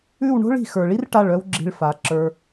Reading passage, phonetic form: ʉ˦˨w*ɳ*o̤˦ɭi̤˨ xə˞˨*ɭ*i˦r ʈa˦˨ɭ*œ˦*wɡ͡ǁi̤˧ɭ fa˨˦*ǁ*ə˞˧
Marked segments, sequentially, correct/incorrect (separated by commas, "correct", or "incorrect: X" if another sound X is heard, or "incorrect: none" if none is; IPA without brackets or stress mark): correct, correct, correct, correct